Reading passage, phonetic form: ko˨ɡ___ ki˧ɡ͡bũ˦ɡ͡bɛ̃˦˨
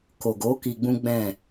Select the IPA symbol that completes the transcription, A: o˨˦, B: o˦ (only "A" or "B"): A